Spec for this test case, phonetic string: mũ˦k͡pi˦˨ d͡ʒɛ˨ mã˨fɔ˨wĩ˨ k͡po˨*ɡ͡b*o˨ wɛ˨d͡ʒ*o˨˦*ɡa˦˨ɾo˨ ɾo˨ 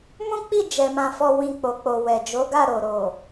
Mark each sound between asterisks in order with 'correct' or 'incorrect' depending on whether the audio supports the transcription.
incorrect, correct

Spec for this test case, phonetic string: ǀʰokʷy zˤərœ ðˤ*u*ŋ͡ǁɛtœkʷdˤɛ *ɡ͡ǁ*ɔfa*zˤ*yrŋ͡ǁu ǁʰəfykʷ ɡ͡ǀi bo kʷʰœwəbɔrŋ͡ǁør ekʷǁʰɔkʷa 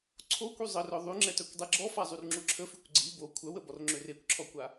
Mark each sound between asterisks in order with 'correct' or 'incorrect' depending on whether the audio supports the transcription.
incorrect, correct, correct

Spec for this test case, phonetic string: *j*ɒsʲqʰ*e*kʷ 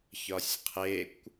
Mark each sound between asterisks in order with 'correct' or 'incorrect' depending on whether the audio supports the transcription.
incorrect, correct

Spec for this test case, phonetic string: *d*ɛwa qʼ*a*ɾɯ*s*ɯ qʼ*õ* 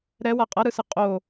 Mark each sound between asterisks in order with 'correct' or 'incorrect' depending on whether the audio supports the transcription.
incorrect, incorrect, correct, incorrect

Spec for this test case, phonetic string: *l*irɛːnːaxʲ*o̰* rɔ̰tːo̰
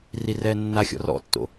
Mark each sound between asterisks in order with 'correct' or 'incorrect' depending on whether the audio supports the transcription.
incorrect, incorrect

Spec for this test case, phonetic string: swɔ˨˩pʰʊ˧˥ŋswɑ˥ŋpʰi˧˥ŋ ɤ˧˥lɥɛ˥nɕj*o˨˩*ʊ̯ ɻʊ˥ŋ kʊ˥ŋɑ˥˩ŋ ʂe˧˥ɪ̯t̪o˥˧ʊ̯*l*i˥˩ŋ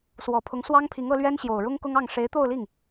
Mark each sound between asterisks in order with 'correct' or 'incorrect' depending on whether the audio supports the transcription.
correct, correct

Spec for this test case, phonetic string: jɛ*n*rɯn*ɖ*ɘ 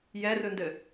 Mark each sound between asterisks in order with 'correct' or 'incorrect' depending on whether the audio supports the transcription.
incorrect, incorrect

